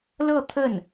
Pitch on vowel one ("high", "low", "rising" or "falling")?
falling